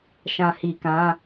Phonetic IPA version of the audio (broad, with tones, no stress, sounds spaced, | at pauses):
ʃ ã˨ h i˨ k ã˨˦